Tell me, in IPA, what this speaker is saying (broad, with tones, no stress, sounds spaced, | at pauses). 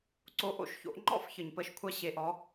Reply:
ǀ o˩˥ ʔ o̰˥˩ ʃ ç o̰˩˥ ʔ ŋ͡ǃ ɔ̰˥˩ f ç ə˩ ɲ p ə˥˩ ʃ kʷʰ a˥ ɕ e˩˥ ʔ ɔ˩˥